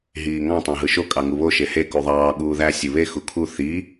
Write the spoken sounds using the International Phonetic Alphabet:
ɦ iː ŋ ɑ̃ tˤ ɑ̃ ɦ ɯ ʃ o kʼ ɑ ŋ u β o ʃ e h e k u ðˤ ɑː ɠ uː ð æ sʲ ɯ β e x u kʰ u θ i

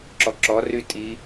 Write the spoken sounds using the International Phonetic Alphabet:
ǁ ɔ ǁ ɔ r y tʼ i

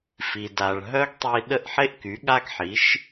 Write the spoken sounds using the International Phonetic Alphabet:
f i˩ d a˩ ɭ ɦ œ˥ ɡ tˤ i˧ ɗ ə˥˩ ʔ ħ e˥ ʔ k y˩˥ ɠ a˥ ɡ ħ i˩˥ ʃ

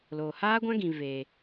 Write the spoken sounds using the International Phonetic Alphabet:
l oː˨ h aː˦ ɡʷ ã˦ ɡ ĩ˨ v eː˨

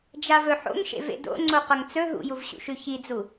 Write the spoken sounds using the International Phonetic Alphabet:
d͡ʒ a v ɵ ħ o̰ ŋ ʃ ḛ v ḛ d o̰ ŋ͡ǀ o q ɐ ŋ t͡s ɵ ɦ ṵ j u v ɕ ṵ ʃ ʉ ç i d͡z u

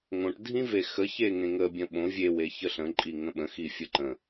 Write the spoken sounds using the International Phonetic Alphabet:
ŋ õ ʈ dʱ ĩ v e x ə ç e ŋ ẽ ŋ ə bʲ ə̃ ɓ õ vʲ e w e ç ə ɬ ə̃ ǃʼ i ŋ ə̃ ɓ ə̃ x i fʲ ə ǃ ə̃

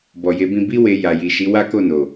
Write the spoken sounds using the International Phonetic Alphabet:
b ɔ˨ j e˨˦ b ĩ˧ b i˦ w e˧ j a˨ j i˨ ʃ i˨˦ w a˦ k o˦˨ n o˨

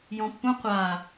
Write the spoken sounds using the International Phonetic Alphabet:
j ɔ̃ pː ũ qʷ a

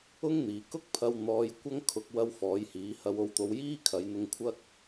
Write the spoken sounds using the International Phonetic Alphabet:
ʊ˥ ŋ n̪ iː˨˩ k ʊ˥ k̚ pʰ ɐ˧ w n̪ ɔː˧ j kʷ ɐ˥ ŋ kʰ ʊ˧ k̚ w ɐ˥ w f ɔː˨˥ j h iː˨˥ h ɐ˧ w o˧ w t̪ o˧ w j iː˥ kʰ ɐ˨˧ j n̪ ʊ˧ ŋ kʷʰ ɐ˥ k̚

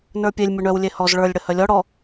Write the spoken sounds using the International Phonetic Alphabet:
n ə˞ pʲ e lʲ mʲ u ɳ œ w lʲ e h ɔ z ɭ ə˞ lʲ ɽ ə h œ lʲ ɔ ɽ ɔ

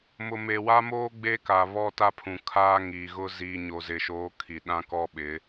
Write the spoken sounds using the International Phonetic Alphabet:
m ʊ˨ m e˨ w a˦ m oː˦ ɡ͡b e˦ k a˨ β ɔ˦ t a˦ pʰ ũ˨ kʰ aː˦ ŋ iː˨ ɣ ʊ˦ z iː˨ ɲ o˨ z ɪ˨ ʃ oː˨˦ kʰ i˨ ɗ ã˦ k ɔ˦ ɓ ɪ˨˦

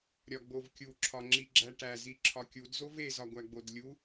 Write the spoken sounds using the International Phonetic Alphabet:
ɾʲ ɒ ɡ͡b o v kʲ u ǁʰ ɒ ŋ͡ǁ i ɡ͡ǁ æ ʈ æ z i ǁʰ ɒ kʲ u d z o v e z ɒ ɡʷ æ ɡ͡b o d lʲ u

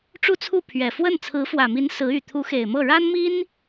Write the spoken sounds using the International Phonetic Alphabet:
ʈ͡ʂ u˥˧ t͡sʰ u˥˩ pʰ ɥ ɛ˨˩ f w ə˥˩ n t͡sʰ ɹ̩˧˥ f w ä˨˩ m i˧˥ n s ɹ̩˧˥ y˨˩ t̪ʰ u˧˥ x e˨˩ ɪ̯ m ɤ˥˩ ɻ a˥ n m i˥ n

